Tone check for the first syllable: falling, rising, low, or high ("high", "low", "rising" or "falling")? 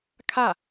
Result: falling